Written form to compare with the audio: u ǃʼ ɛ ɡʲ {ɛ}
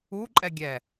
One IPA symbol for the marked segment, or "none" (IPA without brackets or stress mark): ɛ